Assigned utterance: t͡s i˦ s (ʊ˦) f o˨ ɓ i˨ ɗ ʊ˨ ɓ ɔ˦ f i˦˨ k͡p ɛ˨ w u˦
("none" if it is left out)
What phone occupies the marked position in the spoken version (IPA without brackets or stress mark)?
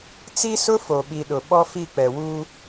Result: ʊ˦